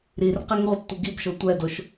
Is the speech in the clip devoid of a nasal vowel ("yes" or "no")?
yes